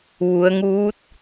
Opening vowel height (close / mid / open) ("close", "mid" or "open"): close